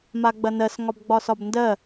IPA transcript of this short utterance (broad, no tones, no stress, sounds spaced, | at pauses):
m a ɡ͡b ɐ n ɜ s ŋ ɒ b ɡ͡b ɒ s ɒ b n d ɜ